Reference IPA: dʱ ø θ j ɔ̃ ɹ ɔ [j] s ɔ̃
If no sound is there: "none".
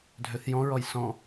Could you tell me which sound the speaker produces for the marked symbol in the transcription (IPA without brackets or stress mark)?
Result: j